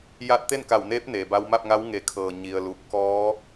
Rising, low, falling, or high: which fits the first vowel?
rising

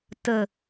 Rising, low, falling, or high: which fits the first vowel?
low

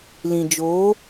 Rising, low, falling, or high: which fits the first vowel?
low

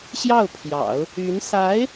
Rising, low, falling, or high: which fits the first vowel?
falling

